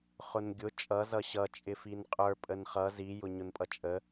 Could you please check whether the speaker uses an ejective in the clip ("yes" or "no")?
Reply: yes